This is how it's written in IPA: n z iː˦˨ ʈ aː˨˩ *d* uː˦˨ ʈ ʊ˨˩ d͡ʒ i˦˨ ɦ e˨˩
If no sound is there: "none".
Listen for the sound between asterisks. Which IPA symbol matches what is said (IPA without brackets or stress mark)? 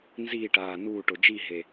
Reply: n